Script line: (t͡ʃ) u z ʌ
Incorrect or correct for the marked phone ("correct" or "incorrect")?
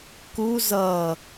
incorrect